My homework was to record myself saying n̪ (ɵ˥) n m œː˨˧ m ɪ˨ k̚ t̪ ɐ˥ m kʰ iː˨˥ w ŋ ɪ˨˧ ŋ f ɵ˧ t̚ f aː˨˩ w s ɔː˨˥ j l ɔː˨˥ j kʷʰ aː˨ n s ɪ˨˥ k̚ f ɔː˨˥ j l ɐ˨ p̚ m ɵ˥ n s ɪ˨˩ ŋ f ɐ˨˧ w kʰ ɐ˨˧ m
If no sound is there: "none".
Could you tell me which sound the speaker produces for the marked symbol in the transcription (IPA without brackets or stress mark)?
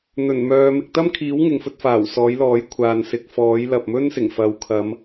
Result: ɵ˨˩